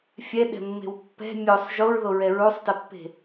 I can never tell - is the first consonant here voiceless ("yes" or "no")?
yes